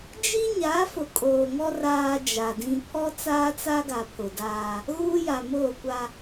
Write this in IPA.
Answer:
d͡ʒ i˦ ɲ a˨˦ f ʊ˨ kʼ oː˨ ŋ ɔ˦ r aː˦ d͡ʒ a˨ d ĩ˦ pʰ ɔ˦ t͡s aː˦ t͡s a˦ ɡ a˨ pʰ ʊ˨ d aː˦ | ɣ uː˦ j a˨ m oː˦˨ kʷ a˦

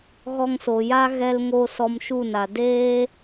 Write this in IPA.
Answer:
ɣ ɔ˧ ŋ s o˨ j a˦ ɣ ɛ˧ l ŋ o˧ s ɔ˧ m ʃ u˦˨ n a˨ d eː˦

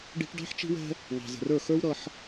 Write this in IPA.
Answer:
ɖ i̤˦ ʈ ɖ ɑ̤˦ ħ t͡ʃ i̤˦ w ɛ̤˦ | ŋ ɑ̤˨ z ə̤˨ r ə˞˦˨ x ə˞˦ w ɾ ʌ˦ ħ

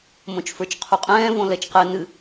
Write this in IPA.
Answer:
m õ t͡ʃ f ə˞ t͡ʃ qʰ u qʼ ɛ̃ː v õ l ɛ t͡ʃ q ɛ n ɨ

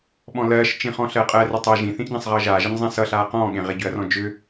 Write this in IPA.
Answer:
ɓ ɔ̃ l ɜː ʃ t͡ʃ ĩ χ ɔ̃ ɬ ɜː qʼ ɜ r ʏ tˤ ɜ ʒ ĩ θ ĩ ʔ ɟ ɛ̃ sˤ ʁ ʌː ʒ aː ʒ ʌ ɲ zˤ ɛ̃ s ʌ ɬ aː q ɔ̃ː ɠ ẽ ʁ e ɟ ʏ ɐ̯ r ɔ̃ d͡ʒ ʏ

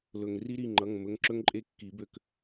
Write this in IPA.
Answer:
l ɵ˩ ŋ r i˦ ɾ i˩˧˩ ŋ͡ǃ ʌ˩˧˩ ŋ m ɵ˩˧˩ ŋ ǁ ɵ˦ ŋ ǃʼ e˦˨ kː i˨˩˦ b ø˦˨ k

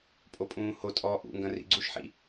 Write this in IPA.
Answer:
pʼ o pʼ ũː h o tʼ ɔː ʔ ṵ ŋ ɡ ɐ̃ r ḭ ɡ͡ǀ u ʃ ħ ḭ

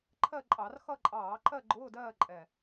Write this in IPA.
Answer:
ǃʰ ɜ˥˧ ǃʼ ɑ˧˩˧ r x ʌ˥˧ ǃʼ ɑː˧˩˧ ǃ ɜ˥˧ ɡ͡ǃ ʊː˧˥˧ d ɜː˥˧ ǃʼ ɛ˨˩

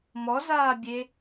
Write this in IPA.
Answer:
m ɔ z aː bʲ e

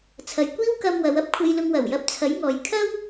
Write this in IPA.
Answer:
t͡sʰ ɐ˨ j kʷ iː˥ w k ɐ˧ m w ɐ˨˧ w ɐ˥ p̚ kʷʰ e˧ j l ʊ˧ ŋ w ɐ˨˩ w j ɐ˧ p̚ t͡sʰ ɐ˨˥ j ŋ ɔː˨ j kʰ ɐ˥ w

